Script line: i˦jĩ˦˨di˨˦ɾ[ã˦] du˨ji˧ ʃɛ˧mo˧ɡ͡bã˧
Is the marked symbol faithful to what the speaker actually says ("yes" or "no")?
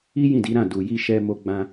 no